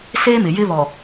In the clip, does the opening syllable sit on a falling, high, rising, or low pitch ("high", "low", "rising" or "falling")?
high